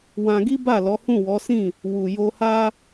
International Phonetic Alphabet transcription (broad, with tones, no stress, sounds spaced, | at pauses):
w ã˧ ɡ i˦ b a˦˨ l ɔ˨˦ h ũ˦˨ w ɔ˨˦ s ĩ˦˨ | w u˨ j o˧ h a˦